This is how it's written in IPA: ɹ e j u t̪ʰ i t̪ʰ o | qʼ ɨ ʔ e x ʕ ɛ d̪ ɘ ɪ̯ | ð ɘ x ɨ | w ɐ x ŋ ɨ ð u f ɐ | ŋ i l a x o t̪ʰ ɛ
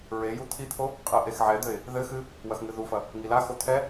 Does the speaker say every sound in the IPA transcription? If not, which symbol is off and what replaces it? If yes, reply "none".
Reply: none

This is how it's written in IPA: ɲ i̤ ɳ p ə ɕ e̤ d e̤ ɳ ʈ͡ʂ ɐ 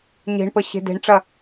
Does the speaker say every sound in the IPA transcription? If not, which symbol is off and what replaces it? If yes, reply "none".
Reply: i̤ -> e̤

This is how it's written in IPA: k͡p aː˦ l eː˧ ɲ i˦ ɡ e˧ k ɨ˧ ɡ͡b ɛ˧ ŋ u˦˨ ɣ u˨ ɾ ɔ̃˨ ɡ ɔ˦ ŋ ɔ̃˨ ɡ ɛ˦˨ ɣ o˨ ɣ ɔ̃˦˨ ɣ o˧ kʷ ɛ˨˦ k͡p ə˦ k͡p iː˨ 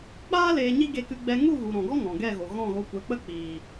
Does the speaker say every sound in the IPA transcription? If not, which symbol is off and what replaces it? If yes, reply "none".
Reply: none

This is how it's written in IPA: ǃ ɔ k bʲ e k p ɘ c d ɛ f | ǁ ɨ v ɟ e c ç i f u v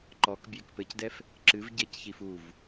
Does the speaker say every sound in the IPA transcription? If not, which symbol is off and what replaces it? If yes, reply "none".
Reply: none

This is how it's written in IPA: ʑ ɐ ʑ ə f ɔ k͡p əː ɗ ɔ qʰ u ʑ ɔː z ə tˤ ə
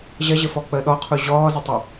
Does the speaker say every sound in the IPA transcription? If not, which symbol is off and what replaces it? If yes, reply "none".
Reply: none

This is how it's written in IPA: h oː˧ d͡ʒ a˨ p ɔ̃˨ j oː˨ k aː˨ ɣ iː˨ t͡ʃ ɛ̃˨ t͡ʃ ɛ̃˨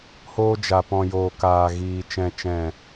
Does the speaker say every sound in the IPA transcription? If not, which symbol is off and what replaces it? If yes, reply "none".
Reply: none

